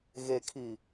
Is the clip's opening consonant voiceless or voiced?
voiced